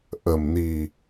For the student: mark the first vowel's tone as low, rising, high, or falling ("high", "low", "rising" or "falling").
low